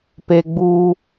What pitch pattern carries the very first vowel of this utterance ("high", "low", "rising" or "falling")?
high